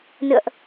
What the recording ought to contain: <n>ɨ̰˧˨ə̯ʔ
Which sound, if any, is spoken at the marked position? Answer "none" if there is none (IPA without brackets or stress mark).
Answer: n